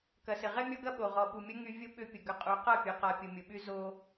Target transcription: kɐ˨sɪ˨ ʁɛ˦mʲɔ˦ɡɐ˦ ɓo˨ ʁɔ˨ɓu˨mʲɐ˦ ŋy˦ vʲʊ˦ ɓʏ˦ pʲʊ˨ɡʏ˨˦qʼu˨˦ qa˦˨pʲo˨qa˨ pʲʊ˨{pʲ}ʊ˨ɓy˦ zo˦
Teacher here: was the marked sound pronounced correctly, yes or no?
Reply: no